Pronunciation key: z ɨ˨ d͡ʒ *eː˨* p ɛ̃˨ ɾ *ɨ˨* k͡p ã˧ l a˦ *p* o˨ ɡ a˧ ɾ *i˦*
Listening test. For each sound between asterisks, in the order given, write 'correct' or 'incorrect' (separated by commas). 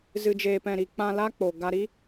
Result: correct, incorrect, incorrect, correct